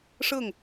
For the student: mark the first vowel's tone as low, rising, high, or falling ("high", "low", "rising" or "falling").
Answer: falling